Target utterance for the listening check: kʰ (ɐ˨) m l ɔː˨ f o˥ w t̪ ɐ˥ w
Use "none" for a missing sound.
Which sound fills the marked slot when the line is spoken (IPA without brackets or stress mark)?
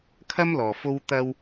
ɐ˥